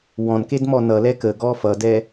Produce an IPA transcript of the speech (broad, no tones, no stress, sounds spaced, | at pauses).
w ɔ̃ n k e d m ɔ n ʌ l ɛ k ə ɡ ɔ f ʌ d ɛ